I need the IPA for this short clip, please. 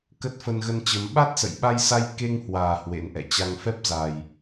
k ə˦˥ t̚ f ə˧ n ɣ ə˧ n t͡ɕ ə˨˦ m ɓ a˦˥ t̚ s ə̰˧˨ j ɓ a˧ j s a˧ j k e˧ ŋ h w aː˨˩ h w ḛ˧˥ n ʔ ɛ̰˧˨ t͡ɕ a˧ ŋ f ɛ˦˥ p̚ z a˨˩ j

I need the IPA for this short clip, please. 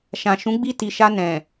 ʃ ã˨ ʃ ũ˨˦ ɡ͡b i˧ t i˨ ʃ a˧ n ɛ̃˨

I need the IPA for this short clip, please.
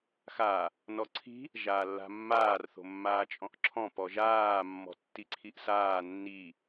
x a | n ɔ ǀʰ i̤ | ʒ aː lː a̤ mː aː r θ o̤ mː aː t͡ʃʼ ɔ̃ ʔ ǁʰ ɔ̃ p ɔ ʒ aː mː ɔ̤ tː i ǀʰ i ʔ s aː nː i

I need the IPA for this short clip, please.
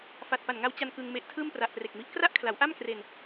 f a˨˩ t̚ p a˨˩ n ŋ a˧ w t͡ɕ a˧ n k ɯ˧ ŋ m e˦˥ ʔ tʰ ɯː˥˩ m p r a˨˩ ʔ p r e˨˩ k̚ m i˦˥ ʔ k r a˥˩ ʔ kʰ l a˩˦ w ʔ a˥˩ m k r e˧ n

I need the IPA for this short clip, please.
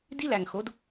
d i˦ l æ˨ ŋ x o˨˦ d

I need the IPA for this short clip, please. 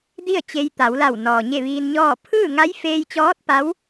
d i˥˨ ə̯ t͡ɕ e˧ j t̪ a˩˧ w l a˧˩ w n ɔː˩ ɲ e˥˨ ʋ iː˧ n ɲ ɔː˥˨ pʰ ɯː˥˨ ŋ a˧˥ j f eː˧ j t͡ɕ ɔː˧˥ t̚ p a˧˥ w

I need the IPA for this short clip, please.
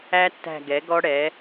æ˦˥ tː æ̤˦˨ ɡ ɛ˩˥ ɡ ɔ˦˥ ɽ ɛ˩˥

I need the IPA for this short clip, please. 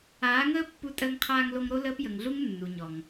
aː˨˦ ŋ əː˦ pː u˧ tʼ əː˦ ŋ qʰ aː˦ ŋ l o˦ ŋ ɾ o˧ l əː˧ p j ə˨ ŋ ɮ u˧ ŋ nː u˨ ɲ ɔ˨ ŋ

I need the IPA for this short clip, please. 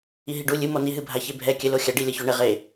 i ɦ i ɖ u lʲ ɨ m ɔ n i ɦ ɨ bʱ a ç e bʱ ɛ kʲ ɘ l o xʲ a ɖ i lʲ ɐ ç o ɳ ɘ ʁ e

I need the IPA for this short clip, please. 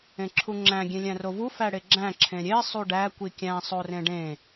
ẽ ǁʰ u ŋ͡ǁ æ̃ ɡʲ ẽ lʲ æ̃ r o v u f æ ɽ e ɡ͡ǁ æ̃ ǁʰ ẽ ɾʲ e sˤ u ɖ æ kʷ i kʲ æ̃ sˤ o r ẽ ɖ ẽ

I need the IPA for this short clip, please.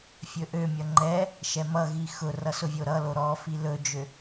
fʲ ɵ ʔ ø mʲ ʌ ŋ͡ǃ ɛ | ʃ ɛ m ʌ ɣ i x ʊ r ʌ s ʊ vʲ o ɾ ʌ l o ɾ ɔ f i l ɵ d͡ʒ ø

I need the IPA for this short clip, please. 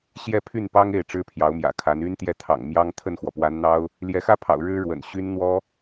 ɕ j ɛ˥˧ pʰ y˥˩ n p ɑ˥ ŋ e˥˩ ɪ̯ ʈ͡ʂ ɻ̩˥ pʰ j ɑ˧˥ ʊ̯ m j ä̰˨˩ kʰ a˧˥ n y˥ n t̪ j ɛ˥˩ t̪ʰ ɑ̰˨˩ ŋ m j ɑ˥ ŋ t̪ʰ ə˥˩ n x w ɔ˩ p w a˧˥ n n̪ ɑ˥ ʊ̯ | l j ɛ˧˥ x ä˥ pʰ ɑ̰˨˩ ʊ̯ ɻ ɻ̩˥ ɻ w ə̰˨˩ n ɕ y˥ n n̪ w ɔ˥

